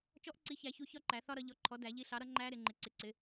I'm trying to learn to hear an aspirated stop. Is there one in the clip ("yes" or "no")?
yes